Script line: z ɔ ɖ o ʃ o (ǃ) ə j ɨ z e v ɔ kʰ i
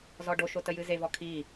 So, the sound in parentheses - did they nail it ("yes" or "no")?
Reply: no